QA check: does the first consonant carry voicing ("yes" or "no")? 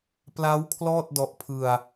no